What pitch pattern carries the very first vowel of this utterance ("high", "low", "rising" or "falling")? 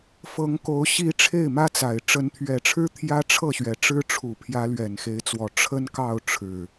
rising